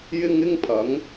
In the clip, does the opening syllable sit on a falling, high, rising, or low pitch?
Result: high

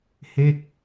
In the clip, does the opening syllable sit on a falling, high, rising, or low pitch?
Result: falling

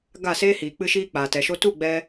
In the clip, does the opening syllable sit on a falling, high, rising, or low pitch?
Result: falling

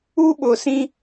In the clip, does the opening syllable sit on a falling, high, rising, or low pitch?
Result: high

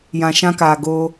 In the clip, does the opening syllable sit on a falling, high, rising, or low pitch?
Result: low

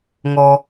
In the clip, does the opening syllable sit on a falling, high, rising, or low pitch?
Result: low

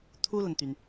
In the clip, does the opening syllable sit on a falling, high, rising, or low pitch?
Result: high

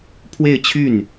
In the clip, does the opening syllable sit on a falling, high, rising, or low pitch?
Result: falling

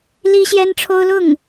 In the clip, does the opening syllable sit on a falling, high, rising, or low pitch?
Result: high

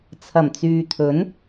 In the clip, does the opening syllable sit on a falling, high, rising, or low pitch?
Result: low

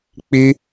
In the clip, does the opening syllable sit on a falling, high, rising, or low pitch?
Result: high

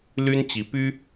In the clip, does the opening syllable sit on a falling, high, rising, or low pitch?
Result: high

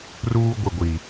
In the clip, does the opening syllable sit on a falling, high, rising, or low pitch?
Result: high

